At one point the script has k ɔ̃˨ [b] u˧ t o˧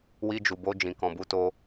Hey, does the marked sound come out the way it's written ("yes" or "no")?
yes